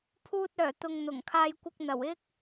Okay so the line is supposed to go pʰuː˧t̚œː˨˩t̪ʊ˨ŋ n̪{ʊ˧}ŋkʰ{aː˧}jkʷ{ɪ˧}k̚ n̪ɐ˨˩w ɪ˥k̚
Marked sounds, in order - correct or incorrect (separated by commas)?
incorrect, correct, correct